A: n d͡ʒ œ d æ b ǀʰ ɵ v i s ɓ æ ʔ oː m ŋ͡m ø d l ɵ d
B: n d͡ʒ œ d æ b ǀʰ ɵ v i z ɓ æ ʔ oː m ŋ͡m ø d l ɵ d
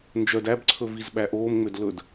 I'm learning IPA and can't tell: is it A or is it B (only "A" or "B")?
B